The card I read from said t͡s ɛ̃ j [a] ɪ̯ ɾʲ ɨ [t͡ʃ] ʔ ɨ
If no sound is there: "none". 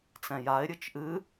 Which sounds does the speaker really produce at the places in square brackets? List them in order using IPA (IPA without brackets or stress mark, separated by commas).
a, t͡ʃ